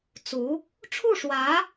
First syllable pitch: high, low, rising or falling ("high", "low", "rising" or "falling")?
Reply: rising